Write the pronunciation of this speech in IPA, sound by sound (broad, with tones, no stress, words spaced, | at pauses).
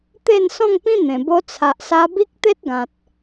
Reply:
t̪e˥˧nsɔ̃˥˧ŋpĩ˦n̪ẽ˨˩ bo˧t͡sʰa˨ʔsa˧ bi˦k̚t̪e˦t̚ɡã˨t̚